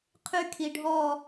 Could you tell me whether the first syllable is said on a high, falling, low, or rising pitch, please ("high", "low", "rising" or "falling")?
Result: high